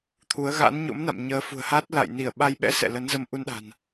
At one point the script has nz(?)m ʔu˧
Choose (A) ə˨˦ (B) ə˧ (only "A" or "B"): B